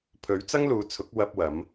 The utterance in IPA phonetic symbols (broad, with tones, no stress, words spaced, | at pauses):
pʰɵ˨˥ɥt͡sɐ˥ŋluː˨˧t͡sʰʊ˨˥k̚ wɐ˧p̚wɐ˨˧m